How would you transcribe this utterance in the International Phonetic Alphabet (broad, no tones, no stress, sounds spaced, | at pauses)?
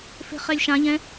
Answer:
f e̤ χ ɛ lʲ ʃ ã ʎ ɛ̃